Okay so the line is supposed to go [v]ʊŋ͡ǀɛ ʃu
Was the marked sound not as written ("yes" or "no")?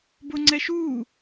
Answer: yes